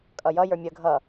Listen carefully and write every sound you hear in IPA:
kʼʌjʌ jə˞mʲə ɡʱʌ

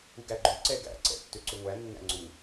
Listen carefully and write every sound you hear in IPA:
uɡæɡ͡ǃø ǀɛɡæ̰ ǀɛ̰tːøǀʏŋʷæ nːæ̰ŋ͡ǀu

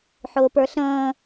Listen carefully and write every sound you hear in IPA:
ħʊːpə˞ɬə̃ː

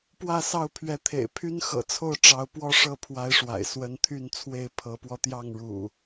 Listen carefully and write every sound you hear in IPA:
pwä˥˨sɑ˥˨ʊ̯pʰɥɛ˨˦t̪ʰḛ˨˩ɪ̯ pʰy˦nxɤ̰˨˩t͡sʰo˥˨ʊ̯ ʈ͡ʂɑ˨˦ʊ̯pwɔ˦ ʂɤ˥˨pʰwa˨˦ɪ̯ʂwa̰˨˩ɪ̯ swə˨˦nt̪ʰy˥˨nt͡sʰwe˥˨ɪ̯ pʰɤ˨˦pwɔ˧t̪jɑ˥˨ŋɻṵ˨˩

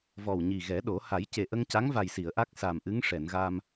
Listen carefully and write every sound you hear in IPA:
vɔ˨˩wɲi˨˩ɣɛ˨˩˦ ɗo˨˩˦ ha˨˩˦jce˨˩ʔə˧ŋ ca˧˥ŋva˨˩jsi˨˩˨ə̯ ʔa˦˥k̚ sa˨˩mʔɨ˧˥ŋʂɛ˨˩˨nɣa˧m

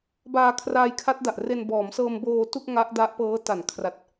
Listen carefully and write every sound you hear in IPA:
baː˧ kʰraː˧jkʰa˦˥t̚da˨˩ʔ re˧nbɔː˩˦m sɤː˧mboː˧tu˥˩k̚ ŋa˦˥ʔda˦˥ʔpɤː˦˥ ta˩˦nkʰra˨˩t̚

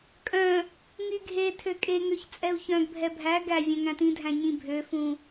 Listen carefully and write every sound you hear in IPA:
kʼœ̃ | ŋyɡʱetʰø kʼeŋøç t͡sʼɛu̯çœ̃ɡbʱɛ bʱæ ɡæ vʲœ̃ŋæ̃tĩdʱæ̃ ɲĩbʱøfũ

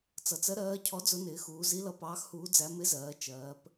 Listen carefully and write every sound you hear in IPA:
t͡sʌ˩˧t͡s ɜ˧˥ɾɜː˧˥cʰɔ˧˥ d͡zʊ˧˥nɪː˩˧xuː˩˧zi˧˥ lʌ˧˥pɑː˧˥xhuː˧˥d͡zæ˧˥ mɪ˧˥ zɜː˩˧ t͡ʃɜː˩˧p

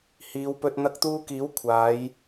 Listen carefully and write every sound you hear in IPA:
hiː˨˧wpɵ˧t̚ n̪ɐ˧k̚t̪uː˧kiː˨˥w kʷʰaː˨˧j

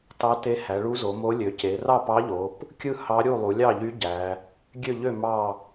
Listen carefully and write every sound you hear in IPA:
tɑ˧˥te˧˥ hæ˩˧ɭu˧˥zo˩˧mo˧˥ lʲø˩˧ce˩˧rɑ˥˨pɑ˧˥ ʎo˩˧p | kʲɯ˥˨hɑ˧˥ ɾʲu˥˨ lˠu˩˧lʲɑ˥˨ʎy˧˥ ɟæ˩˧ | ɡʲø˥˨ʎø˥˨ mɑ˥˨

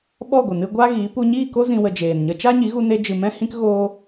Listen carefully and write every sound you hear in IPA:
ɓɔ˦˨ɡʷə˨nɨ˧ ɡʷa˦ɣi˨˦ pu˧ɲiː˦˨ko˦ zĩ˦wə˧d͡ʒeː˨nɲə˦ t͡ʃa˦ɲi˨˦ɣu˧ne˧ d͡ʒɨ˨mɛ̃˦hĩ˦k ɣoː˦

